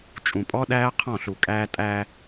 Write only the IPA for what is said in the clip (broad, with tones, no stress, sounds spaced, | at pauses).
t͡ʃʼ ũ˨ pʼ ɔ˦ ɗ æː˦ qʰ ɔ̃˦˨ ɬ u˨ kʼ æː˦ tʼ æː˦